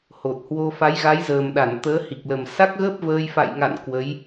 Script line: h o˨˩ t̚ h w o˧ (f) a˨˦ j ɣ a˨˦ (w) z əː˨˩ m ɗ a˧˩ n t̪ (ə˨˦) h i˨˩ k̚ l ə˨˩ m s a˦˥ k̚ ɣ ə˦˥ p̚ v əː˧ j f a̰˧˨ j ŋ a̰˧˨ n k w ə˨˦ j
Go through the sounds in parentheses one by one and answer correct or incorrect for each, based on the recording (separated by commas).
correct, incorrect, incorrect